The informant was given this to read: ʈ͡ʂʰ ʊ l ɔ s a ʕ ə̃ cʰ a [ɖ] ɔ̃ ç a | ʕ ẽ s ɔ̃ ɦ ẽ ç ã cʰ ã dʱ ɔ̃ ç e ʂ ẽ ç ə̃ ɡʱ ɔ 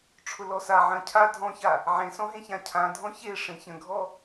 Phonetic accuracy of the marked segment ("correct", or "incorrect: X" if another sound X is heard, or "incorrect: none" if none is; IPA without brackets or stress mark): incorrect: dʱ